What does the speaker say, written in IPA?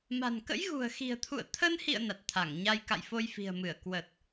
m a̤˨˩ n k ə̰˧˥ j ɣ ṳ˨˩ ə̯ x i̤˨˩ ə̯ t̪ʰ ṵ˧˨ ə̯ t̪ʰ ə˧ n h ḭ˧˨ ə̯ n a˨˩ t̚ t̪ʰ a˧˩ ŋ ɲ a˧ j k a̰˧˨ j f o˧ j f i̤˨˩ ə̯ m ɨ˧˩ ə̯ k w ə˨˩ t̚

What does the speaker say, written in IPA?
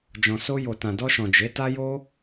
d͡ʒ ɔ̃˨ s o˧ j o˨ t ã˨ d ɔ˧ ʃ ɔ̃˨ d͡ʒ e˨˦ t a˦ j o˦

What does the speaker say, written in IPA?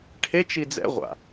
ʈʰ e t͡ʃ i d͡z ɛ̰ ʁʷ a̰

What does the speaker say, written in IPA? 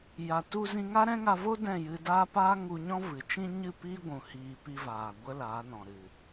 j a˨ t u˧ z ĩ˧ ŋ a˦ ɾ ɛ̃˦ ŋ a˧ v o˦ d ɛ̃˦˨ j ɨ˧ d aː˦ p aː˦ ŋ u˧ ɲ ɔ̃˦ v ɨ˨ t͡ʃ ĩ˦ ɲ ɨ˦˨ p iː˦ ɡʷ ũ˨ h iː˨ p i˧ v aː˨ ɡʷ ə˦ l aː˨˦ n ɔ̃˨ ɾ ɨ˨

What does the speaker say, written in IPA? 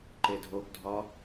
ǃ e dʱ o ɡ dʱ ɒ

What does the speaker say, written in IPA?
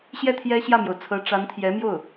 ɕ j ɛ˥˩ t̪ʰ j ɛ˥ ɕ j ä˥˩ m j o˩ ʊ̯ t͡sʰ ɤ˧˥ ʈ͡ʂ a˧˥ n t̪ʰ j ɛ˧˥ m j o˥˩ ʊ̯

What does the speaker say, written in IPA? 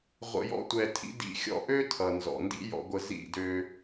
ʁʷ ə̰˧ j ɔ̰˦ tʷ ɛ˧ tʰ ḭ˦ d ḭ˧ xʲ ɔ̰˧ ʔ ø˦ tʰ ʌ˨ n z ɔ̰˨ n d ḭ˦ j ɔ̰˧ ɡʷ ə˧ z ḭ˦˨ d ø˧

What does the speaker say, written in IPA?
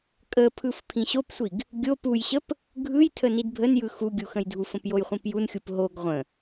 kʼ ə pʰ ɯ f pʰ ĩ ɕ o p sʷ i ɡ | ɡʲ o p u j ɕ ə p | ɡʱ ɯ j tʰ ə n i d bʱ ə n j ɯ x u ɡʲ u x ə̃ j dʱ u f ə̃ p j o j χʷ ĩ p j u n xʲ u p ɦ o ɡ ʁʷ ə̃

